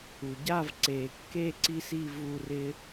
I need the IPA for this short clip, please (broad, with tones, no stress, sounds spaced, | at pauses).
u˩ ɟ a˥˧ v ǀ e˩ kː e˥˧ ǀ i˥ s i˥˧ v u˥˧ r ɪ˥